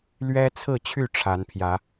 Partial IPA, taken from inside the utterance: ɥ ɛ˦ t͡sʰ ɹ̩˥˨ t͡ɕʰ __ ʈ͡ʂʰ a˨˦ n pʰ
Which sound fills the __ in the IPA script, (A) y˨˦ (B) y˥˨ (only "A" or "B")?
B